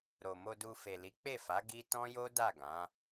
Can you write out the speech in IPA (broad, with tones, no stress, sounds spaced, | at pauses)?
ɾ o˨ m o˧ d u˧ f e˨ l i˨˦ k͡p e˦˨ f a˨˦ ɡ i˦ t ɔ̃˦ j o˦ d a˦˨ ɡ ã˨˦